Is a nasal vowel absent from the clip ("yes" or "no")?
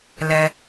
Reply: yes